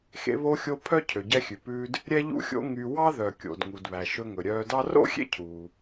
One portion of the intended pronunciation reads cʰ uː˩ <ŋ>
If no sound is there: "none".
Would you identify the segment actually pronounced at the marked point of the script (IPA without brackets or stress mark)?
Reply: none